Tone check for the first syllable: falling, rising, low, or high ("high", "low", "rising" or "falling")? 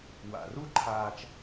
low